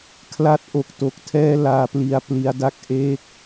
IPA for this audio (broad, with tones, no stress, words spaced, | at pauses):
kʰla˦˥t̚ ʔo˨˩k̚to˨˩k̚tʰɛː˥˩ laː˧pli˧a̯ pli˦˥a̯da˥˩k̚ ʔe˥˩k̚